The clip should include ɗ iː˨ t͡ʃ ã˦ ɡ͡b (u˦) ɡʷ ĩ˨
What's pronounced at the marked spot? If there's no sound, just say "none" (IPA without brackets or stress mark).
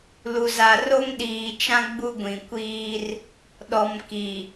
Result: u˦